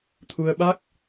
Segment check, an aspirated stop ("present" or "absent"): present